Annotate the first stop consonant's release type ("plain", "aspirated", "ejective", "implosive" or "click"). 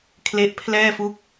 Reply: aspirated